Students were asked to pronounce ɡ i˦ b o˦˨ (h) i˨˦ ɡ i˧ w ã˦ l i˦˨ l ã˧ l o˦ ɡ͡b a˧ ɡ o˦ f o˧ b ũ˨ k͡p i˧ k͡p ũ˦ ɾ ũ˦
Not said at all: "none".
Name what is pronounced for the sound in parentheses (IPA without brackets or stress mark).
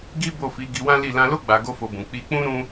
f